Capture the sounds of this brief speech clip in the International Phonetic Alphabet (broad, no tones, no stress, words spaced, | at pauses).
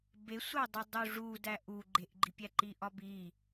besʷædˤu dˤuʐudæ ʔu ɡ͡ǃeʔɡ͡ǃipʲæ ǃiʔɒbi